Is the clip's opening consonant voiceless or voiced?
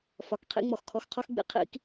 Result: voiceless